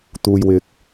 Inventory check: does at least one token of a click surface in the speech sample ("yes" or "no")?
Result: no